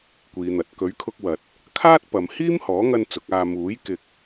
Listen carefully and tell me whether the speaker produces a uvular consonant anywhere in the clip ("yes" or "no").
no